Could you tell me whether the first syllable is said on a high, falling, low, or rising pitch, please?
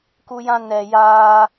high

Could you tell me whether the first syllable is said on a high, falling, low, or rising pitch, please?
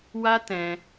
high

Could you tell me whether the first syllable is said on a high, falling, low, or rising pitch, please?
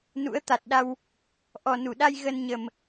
rising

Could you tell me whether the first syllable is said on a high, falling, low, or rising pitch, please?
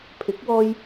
rising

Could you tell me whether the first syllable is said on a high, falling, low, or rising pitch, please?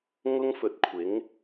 high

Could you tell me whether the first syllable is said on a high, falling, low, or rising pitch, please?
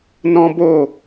high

